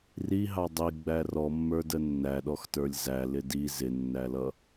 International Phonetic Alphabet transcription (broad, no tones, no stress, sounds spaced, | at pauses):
r i ɦ ɑ dˤ i ɡ͡b æ r ɔ mː ə˞ d ə nː æ ɗ ɔ x t ə˞ lʲ z æ l ɪ d i z ɪ nː æ l ʌ